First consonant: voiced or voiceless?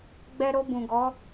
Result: voiced